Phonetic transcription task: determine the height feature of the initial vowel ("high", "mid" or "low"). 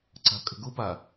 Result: low